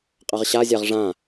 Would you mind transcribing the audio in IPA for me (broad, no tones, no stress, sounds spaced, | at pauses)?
qʼ a ʁ ɕ a zʲ a ʁ ʐ ã